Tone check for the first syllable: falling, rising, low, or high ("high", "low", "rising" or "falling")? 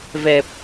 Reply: low